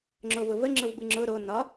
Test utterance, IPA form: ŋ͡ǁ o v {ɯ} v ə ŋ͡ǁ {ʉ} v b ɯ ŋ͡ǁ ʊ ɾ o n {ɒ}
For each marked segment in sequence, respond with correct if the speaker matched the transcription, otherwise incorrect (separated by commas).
incorrect, incorrect, correct